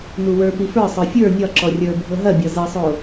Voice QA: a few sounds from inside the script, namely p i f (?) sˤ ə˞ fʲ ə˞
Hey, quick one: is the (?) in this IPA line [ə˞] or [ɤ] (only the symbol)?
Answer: ə˞